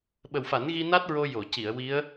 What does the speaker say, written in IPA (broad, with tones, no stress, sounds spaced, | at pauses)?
ɓ ə˨˩ w f a˨˩˦ n ɣ i˧ n a˦˥ t̚ ɹ o˧ j o˨˩˨ c i˨˩˨ ə̯ w i˧˥ ə̯